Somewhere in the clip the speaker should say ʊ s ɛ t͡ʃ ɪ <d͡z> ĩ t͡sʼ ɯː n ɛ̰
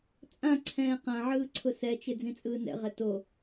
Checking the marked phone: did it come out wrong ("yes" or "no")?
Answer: no